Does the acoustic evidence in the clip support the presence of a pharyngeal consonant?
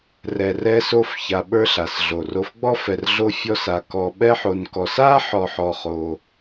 yes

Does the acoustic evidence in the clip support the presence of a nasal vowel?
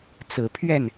no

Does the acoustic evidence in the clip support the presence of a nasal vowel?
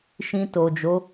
yes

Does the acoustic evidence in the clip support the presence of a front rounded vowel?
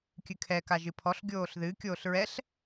no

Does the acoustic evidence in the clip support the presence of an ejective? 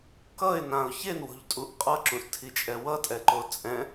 yes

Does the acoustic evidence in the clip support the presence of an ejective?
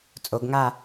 yes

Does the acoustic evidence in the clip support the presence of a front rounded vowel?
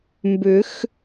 yes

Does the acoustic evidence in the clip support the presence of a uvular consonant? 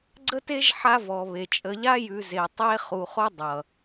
yes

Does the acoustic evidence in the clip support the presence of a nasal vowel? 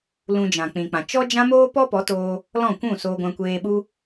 yes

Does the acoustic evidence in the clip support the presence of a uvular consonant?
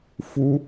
no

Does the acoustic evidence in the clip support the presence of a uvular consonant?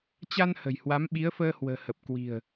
no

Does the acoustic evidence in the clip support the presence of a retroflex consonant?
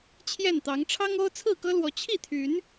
yes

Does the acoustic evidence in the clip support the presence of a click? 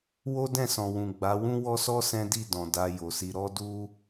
no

